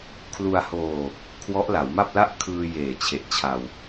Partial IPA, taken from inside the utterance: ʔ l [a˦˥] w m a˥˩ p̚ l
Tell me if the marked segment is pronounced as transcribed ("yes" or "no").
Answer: no